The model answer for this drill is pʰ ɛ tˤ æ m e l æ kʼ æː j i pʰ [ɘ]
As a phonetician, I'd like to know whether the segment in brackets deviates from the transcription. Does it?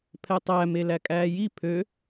yes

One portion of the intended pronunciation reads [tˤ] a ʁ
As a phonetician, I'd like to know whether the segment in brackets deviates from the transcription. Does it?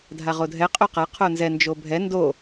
yes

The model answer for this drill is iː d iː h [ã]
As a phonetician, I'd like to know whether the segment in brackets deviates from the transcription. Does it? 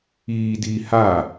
yes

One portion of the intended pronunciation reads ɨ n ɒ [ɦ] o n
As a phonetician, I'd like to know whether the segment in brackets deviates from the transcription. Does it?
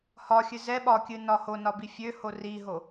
yes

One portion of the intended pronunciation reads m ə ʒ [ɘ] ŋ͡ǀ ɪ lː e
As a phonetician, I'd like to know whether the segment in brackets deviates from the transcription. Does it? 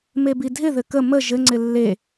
no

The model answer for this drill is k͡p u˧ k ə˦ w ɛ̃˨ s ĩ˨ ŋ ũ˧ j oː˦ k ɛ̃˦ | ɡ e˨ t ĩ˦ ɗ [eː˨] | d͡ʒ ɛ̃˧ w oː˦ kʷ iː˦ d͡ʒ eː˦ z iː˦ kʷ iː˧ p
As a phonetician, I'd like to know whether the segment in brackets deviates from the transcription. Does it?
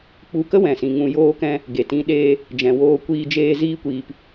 yes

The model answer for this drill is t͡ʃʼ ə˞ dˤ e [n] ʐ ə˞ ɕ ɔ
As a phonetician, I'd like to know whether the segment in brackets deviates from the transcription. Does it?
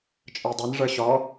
no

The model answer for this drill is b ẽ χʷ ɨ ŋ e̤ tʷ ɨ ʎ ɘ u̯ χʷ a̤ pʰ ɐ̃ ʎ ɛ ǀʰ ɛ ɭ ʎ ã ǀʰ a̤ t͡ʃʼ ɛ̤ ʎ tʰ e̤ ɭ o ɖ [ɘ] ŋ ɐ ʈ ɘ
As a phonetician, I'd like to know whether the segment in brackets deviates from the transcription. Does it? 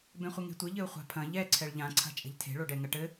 yes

